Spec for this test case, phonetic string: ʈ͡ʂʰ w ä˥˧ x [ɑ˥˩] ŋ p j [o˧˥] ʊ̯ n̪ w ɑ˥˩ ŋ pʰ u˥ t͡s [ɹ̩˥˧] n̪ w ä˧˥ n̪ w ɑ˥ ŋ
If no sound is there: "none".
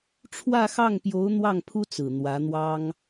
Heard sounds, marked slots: ɑ˥˩, o˧˥, ɹ̩˨˩

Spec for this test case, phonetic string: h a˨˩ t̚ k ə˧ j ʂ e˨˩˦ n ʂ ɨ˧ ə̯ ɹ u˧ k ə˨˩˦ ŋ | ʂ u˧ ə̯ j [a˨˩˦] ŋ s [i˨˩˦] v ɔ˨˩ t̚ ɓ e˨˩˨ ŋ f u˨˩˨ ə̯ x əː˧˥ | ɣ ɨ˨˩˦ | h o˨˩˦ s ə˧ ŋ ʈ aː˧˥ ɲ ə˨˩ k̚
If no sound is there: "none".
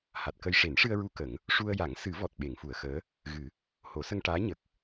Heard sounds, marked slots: a˨˩˦, ɨ˨˩˦

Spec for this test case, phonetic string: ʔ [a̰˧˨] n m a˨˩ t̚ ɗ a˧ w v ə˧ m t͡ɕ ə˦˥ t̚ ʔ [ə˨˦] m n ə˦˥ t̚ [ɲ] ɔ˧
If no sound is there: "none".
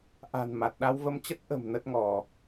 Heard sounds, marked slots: a̤˨˩, ə̤˨˩, ŋ

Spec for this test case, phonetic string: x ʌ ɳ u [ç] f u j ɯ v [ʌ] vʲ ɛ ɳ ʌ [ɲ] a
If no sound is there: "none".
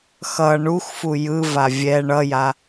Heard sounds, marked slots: x, a, j

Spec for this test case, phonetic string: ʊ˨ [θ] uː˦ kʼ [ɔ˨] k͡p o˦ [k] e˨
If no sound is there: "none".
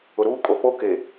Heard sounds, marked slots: ɾ, o˨, k

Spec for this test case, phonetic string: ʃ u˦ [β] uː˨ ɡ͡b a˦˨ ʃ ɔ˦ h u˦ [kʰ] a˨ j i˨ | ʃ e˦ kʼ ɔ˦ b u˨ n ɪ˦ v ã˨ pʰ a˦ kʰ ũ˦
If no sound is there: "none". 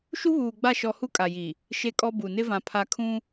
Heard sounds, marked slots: β, kʼ

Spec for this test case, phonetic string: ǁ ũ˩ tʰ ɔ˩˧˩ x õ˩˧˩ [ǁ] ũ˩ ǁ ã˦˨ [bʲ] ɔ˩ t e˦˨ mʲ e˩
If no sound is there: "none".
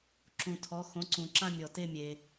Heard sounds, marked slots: ǀ, mʲ

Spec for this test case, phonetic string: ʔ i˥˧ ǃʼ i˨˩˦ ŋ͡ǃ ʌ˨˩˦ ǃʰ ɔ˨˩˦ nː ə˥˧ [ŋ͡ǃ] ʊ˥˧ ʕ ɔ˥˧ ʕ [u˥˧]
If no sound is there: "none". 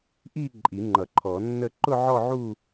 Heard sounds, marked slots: ǃ, u˥˧

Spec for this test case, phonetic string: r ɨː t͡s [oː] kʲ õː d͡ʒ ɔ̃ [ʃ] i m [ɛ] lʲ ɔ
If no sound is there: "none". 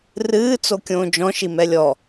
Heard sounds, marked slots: o, ʃ, ɛ

